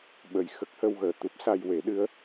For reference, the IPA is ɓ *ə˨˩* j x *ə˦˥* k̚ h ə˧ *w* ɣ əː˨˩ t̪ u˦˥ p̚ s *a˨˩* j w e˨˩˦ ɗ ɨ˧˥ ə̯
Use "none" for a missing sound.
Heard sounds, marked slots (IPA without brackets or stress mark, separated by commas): ə˨˩, ə˦˥, w, a˧